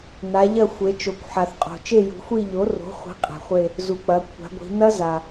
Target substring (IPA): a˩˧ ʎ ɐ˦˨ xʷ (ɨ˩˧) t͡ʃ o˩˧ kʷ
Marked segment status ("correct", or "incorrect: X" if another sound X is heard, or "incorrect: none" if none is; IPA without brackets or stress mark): incorrect: e˩˧